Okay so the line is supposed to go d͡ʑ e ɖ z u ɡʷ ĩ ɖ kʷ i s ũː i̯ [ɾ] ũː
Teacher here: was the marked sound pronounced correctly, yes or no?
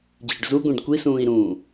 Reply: yes